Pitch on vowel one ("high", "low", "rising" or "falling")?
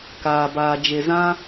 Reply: low